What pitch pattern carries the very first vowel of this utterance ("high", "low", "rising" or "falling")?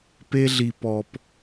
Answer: high